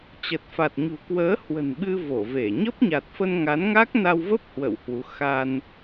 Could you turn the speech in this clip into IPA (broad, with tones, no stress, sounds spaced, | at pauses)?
t͡ɕ ə˨˩ t̚ f a˨˩ t̚ ɲ ṳ˨˩ k w əː˨˦ h w ə̤˨˩ n ɓ ɨ˧ v o˧˩ v e˧˩ ɲ ə˦˥ p̚ ɲ a˨˩ t̚ f ə˧ n ŋ a˨˦ n ŋ a˦˥ k̚ n a˧ w v ə˦˥ p̚ h w ə̰˧˨ w h w u˨˦ x a˧ n